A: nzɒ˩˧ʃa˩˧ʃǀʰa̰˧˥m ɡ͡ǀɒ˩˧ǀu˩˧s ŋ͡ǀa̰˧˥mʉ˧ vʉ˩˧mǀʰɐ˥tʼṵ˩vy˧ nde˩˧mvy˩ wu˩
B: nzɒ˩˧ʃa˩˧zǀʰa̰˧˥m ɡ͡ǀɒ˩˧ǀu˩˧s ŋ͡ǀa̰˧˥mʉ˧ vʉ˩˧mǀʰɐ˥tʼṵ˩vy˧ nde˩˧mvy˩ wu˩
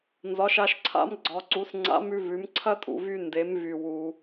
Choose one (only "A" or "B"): A